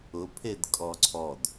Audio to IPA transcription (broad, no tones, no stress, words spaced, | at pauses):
ʊpʰed kʼɔǀʰɔd